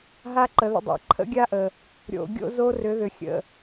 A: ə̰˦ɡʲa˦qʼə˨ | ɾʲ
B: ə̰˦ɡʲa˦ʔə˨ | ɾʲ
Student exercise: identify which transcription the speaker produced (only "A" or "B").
B